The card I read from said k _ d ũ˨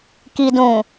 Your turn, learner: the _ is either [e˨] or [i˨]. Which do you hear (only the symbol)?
i˨